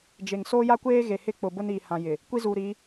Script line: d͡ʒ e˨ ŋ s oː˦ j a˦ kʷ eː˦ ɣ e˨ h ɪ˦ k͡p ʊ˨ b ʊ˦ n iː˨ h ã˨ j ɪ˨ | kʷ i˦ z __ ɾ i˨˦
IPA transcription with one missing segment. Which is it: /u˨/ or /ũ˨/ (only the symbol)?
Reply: u˨